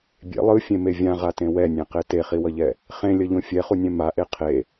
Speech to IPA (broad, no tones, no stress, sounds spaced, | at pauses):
bʲ ḛ lˠ ɯ fʲ ẽ m e vʲ ã ʁ a t ẽ w ɛ nʲ ɛ̃ q e t e χ i w ʌ ʎ ɛ | χ ẽ lʲ ʌ ʎ õ fʲ ɛ χ u nʲ ɛ̃ m a ʔ e qʰ e